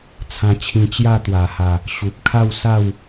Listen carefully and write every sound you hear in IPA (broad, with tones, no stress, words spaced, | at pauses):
t͡sʰã˧t͡ɕʰĩ˧ t͡ɕja˥˧t̪wa˨˩ha˨˩ | ɕu˨p̚kʰa˥˧wsa˥˧w